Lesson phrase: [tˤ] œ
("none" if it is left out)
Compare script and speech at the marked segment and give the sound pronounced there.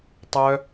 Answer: tˤ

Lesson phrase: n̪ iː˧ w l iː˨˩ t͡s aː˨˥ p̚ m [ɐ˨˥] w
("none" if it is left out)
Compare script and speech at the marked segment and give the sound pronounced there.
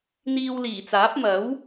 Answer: ɐ˨˥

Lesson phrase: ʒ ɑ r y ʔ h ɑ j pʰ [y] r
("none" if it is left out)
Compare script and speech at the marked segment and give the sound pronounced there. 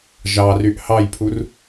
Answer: u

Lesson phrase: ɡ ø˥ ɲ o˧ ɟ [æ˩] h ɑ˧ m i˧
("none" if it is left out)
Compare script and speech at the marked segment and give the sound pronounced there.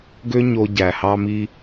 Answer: æ˩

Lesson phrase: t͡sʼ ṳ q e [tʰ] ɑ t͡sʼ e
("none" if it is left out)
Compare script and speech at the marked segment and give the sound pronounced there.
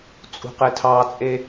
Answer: tʰ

